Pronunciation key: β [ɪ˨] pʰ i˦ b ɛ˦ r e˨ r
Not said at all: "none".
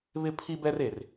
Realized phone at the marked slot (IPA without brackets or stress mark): ɪ˦